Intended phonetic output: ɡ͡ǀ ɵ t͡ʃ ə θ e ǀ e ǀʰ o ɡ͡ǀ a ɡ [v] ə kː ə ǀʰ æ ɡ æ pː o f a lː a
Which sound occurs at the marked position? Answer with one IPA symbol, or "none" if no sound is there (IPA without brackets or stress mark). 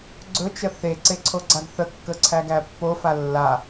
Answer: θ